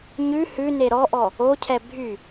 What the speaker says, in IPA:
ɲ ʉ h ʉ n e ɾ ɔ ʔ ɔ | o cʰ ɛ bʱ y

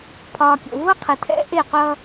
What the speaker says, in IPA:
pʰ ɒː˨ kʲ o̰˨ v ʌ˦ qʰ ɨ˨ tʰ ɛ̰˦ ʔ e˦˨ qʷ ʌ˦

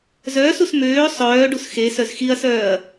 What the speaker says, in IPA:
z œː s u s m øː sˤ œː ɖ u s x e s œ z x i ɐ̯ s œː ɐ̯

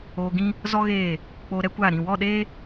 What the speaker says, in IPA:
oː˧ ɡ ĩ˦ | z ɔ˦ ɣ eː˦˨ | k͡p oː˧ ɾ ɛ˦ kʷ aː˦˨ ɾ ĩ˦˨ w ɔ˦˨ ɗ eː˦

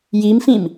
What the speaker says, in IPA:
j i m f ĩ m

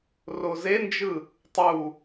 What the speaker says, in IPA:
r o z e n d͡ʒ ɯ | tˤ u

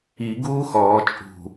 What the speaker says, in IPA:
i ɡ uː x ɔː t͡ʃʼ ṳ

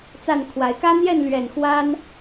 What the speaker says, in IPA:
t͡s a˥˩ n kʰ w a˨˩ ɪ̯ k ä˥ n̪ j ɛ˥˩ n l ɥ ɛ˨˩ n x w a˥ n

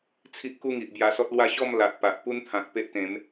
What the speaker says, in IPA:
t͡sʰ i˦ ʔ k u˦ ŋ i˨ ʔ b j a˧ s ɔ˦ t̚ l w a˦ ɕ ɔ˥˧ m l a˨ ʔ p a˨ ʔ p u˦ n t̪ʰ ã˨ k̚ p e˦ ʔ t̪ ẽ˨˦ m

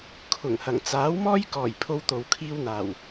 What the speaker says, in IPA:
kʰ ʊ˨˩ ŋ h ɐ˨˩ ŋ t͡s aː˨˥ w m ɔː˥ j k ɔː˨˩ j pʰ o˥ w t̪ o˨ w kʰ iː˥ w n̪ aː˨˩ w

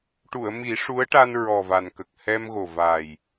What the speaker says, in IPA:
ʈ u˨˩˨ ə̯ m i˨˩˦ ʂ u˧˥ ə̯ ʈ a˧ n ɹ ɔ˨˩ v a˨˩ n k ə˨˩ k̚ h ɛ˧ m ɣ o˨˩ v a˨˩ j

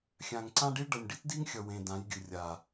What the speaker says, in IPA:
xʲ ã˨ ŋ ǀ ã˦ ɖ i˦ ɭ ɖ ʌ˨ nʲ ɖ i˦ t d i˦ ŋ xʲ ʌ˨ w ẽ˨ d ã˨˦ j ɡʲ ɯ˨ rʲ a˨

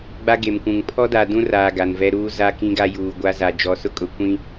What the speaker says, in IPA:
ɡ͡b a˦ ɡ e˨ m kʷ ũ˨ ŋ pʰ ɔ˦ d a˨ d ũ˦ r aː˨ ɡ a˨ n v ɛ˦ ɾ uː˦ z a˦ k ĩ˦ ɡ a˦ j uː˨ ɡʷ a˦ z a˨ d͡ʒ ɔ˨ s ʊ˦ kʼ ʊ˨ kʷ ĩ˦

